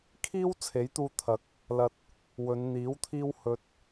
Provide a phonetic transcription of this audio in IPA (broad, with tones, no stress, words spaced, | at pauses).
kʰiː˥w t͡sʰe˨˥jt̪uː˧t̪ʰɐ˨˥k̚ | lɐ˨t̚ | wɵ˨˧nn̪iː˨˥wt̪ʰiː˥w hɵ˧t̚